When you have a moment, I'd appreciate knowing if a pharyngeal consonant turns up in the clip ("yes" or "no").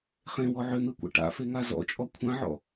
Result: yes